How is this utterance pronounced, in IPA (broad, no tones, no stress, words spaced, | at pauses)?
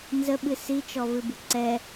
nzəɓɨ sit͡ʃɔvɨbɨ ǀɛ